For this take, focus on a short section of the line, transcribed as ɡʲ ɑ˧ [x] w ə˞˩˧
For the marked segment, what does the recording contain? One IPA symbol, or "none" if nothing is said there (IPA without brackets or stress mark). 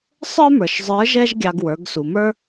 ɡ